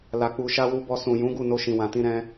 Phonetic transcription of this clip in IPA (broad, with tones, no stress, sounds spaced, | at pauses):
l a˨ k͡p u˨ ʃ a˧ w u˧ b ɔ˧ s ũ˨ j ũ˨˦ ɡ u˦˨ n o˧ ʃ ĩ˨ w ã˨ t ĩ˧ ɾ ɛ̃˦